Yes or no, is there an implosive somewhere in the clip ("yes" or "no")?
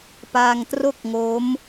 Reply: no